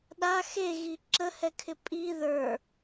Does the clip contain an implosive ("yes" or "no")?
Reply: yes